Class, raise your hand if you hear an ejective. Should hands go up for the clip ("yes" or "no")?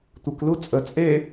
yes